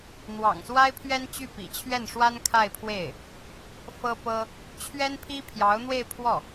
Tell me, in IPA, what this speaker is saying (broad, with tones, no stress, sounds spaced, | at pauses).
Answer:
n̪ w ɑ̰˨˩ ŋ s w a˥ ɪ̯ pʰ ɥ ɛ˥ n t͡ɕ y˥˩ p ḭ˨˩ t͡ɕʰ ɥ ɛ˥˩ n ʂ w a˥ n kʰ a˥˧ ɪ̯ pʰ w e˥˩ ɪ̯ | f ɤ˥ p ɤ˥ | t͡ɕʰ ɥ ɛ˥ n pʰ i˥ pʰ j ɑ˧˥ ʊ̯ n̪ w e˥˧ ɪ̯ pʰ w ɔ˥˩